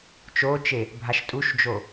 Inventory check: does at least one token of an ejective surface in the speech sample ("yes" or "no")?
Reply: yes